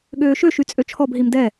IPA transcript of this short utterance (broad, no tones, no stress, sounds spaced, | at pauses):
ɠ øː ʃ ø ʃ y t͡sʼ ø t͡ʃʰ ɔ b ɦ i m d ɛ